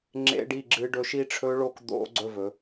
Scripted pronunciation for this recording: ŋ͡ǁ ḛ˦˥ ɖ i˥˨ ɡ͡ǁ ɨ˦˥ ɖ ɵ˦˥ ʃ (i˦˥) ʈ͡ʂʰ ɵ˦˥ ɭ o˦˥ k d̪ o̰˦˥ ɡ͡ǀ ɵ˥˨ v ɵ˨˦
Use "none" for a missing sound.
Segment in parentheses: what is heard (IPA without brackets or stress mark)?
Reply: i˦˥